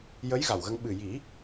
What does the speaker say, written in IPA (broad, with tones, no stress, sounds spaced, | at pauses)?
j ə˧˥ j ɣ a˨˩ w ɣ ə˧ ŋ ɓ ɨ˨˩ j i˨˩˦